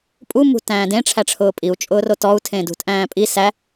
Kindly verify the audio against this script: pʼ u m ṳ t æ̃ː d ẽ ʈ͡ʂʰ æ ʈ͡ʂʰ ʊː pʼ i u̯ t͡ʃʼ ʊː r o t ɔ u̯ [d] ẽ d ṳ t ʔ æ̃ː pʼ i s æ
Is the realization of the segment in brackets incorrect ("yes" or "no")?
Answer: yes